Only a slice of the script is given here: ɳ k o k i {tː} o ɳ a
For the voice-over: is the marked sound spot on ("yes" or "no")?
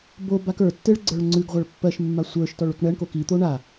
no